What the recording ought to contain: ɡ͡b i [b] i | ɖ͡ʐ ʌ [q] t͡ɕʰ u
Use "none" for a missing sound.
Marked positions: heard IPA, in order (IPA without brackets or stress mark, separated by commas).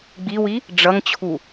w, ŋ